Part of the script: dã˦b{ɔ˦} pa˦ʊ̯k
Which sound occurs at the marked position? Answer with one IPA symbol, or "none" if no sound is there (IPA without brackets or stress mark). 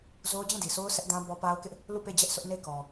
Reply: ɔ˦